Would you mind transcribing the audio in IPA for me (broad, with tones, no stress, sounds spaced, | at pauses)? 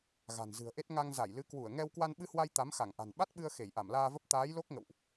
ɣ a̤˨˩ n z ɨ̤˨˩ ə̯ ʔ e˦˥ t̚ ŋ a˧ ŋ z a˧˩ j l ɨ˨˦ k w u˧˩ ə̯ ŋ ɛ˧ w k w a˧ n ɓ ɨ˧ h w a˧ j t̪ a˨˦ m x a˧˩ ŋ ʔ a̤˨˩ n ɓ a˦˥ t̚ ɓ ɨ˧ ə̯ x e˧˩ j ʔ a˧˩ m l aː˧ v ə˦˥ p̚ t̪ aː˨˦ j l o˦˥ k̚ ŋ ə̰˧˨ w ʔ